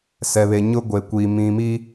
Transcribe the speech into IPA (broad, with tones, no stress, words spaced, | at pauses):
sɛ˨βe˨ ɲʊ˦ɡʷe˨kʷiː˨ mĩ˨miː˦